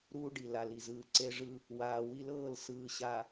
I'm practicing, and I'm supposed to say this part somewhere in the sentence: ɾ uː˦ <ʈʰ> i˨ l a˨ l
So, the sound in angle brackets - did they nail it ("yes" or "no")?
no